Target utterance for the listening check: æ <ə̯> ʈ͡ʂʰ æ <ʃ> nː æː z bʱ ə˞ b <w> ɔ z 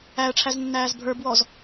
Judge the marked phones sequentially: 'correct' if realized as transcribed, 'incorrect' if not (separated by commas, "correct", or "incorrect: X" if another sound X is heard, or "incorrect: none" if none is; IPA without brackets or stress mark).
correct, incorrect: z, correct